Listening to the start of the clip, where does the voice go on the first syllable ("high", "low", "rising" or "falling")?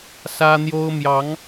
high